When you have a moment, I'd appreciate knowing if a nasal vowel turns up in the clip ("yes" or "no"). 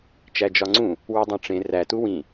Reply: yes